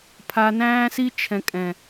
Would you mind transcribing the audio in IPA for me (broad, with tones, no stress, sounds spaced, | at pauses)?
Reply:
pʰ a˧ n æ̃ː˦ s i˦ t͡ʃʰ ɛ̃˨ kʼ ɛ̃˨